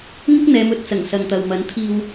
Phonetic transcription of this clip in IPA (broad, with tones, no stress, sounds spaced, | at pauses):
ŋ ɪ˥ k̚ n̪ ɛː˨˧ m ɵ˨˥ t̚ t͡s ɐ˨˩ ŋ s ɐ˨ ŋ t̪ ɐ˨ w m ɐ˨˥ n t̪ʰ iː˨ w